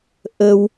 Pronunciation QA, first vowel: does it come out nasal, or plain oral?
oral